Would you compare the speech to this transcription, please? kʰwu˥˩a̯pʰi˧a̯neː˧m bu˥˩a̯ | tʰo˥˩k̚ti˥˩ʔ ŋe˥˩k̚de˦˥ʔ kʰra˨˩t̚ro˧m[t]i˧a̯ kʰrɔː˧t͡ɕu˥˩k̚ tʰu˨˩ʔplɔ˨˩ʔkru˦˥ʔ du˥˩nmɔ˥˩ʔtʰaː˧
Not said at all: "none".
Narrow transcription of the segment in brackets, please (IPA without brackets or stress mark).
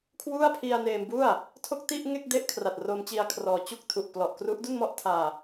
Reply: t͡ɕ